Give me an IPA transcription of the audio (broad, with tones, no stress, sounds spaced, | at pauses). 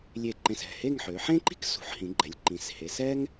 lʲ e˧˩ ǃ ẽ˧˩ s ɛ̤˧˩ h e˥˧ ŋ ħ ø˩˧ ħ ẽ˥ ǃ i̤˥ k s ṳ˩˧ ħ h ĩ˩˧ ɡ͡ǃ ɛ˩˧ lʲ ǃ ĩ˩˧ s h e˩˧ s ɛ˥ ŋ